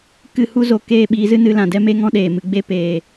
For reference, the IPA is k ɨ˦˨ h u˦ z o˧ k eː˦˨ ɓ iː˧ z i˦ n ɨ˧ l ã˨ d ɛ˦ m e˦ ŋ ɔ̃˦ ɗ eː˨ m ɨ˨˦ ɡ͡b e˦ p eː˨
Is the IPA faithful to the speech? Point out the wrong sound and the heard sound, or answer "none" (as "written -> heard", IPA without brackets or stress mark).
i˦ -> ɨ˦